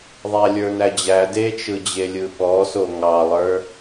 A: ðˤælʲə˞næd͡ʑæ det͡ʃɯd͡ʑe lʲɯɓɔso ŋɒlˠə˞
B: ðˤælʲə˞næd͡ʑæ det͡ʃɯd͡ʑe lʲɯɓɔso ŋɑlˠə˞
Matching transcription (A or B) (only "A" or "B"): B